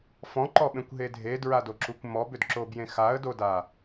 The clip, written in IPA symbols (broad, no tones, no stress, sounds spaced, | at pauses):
f ɔ̃ ǃ ɔ ɓ ẽ kʷ ɦ e dʱ e d ɹ a d o ǁ u kʷ m ɔ b ʏ d ǁ o b j ẽ x a ə̯ d o d a